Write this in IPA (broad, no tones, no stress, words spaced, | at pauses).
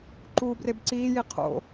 ǃuːbrebǀiːji qʰo̰